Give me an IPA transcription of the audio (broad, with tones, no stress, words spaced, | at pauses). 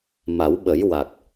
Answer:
ma˨˩˦wɓə˨˩˦jwa˨˩k̚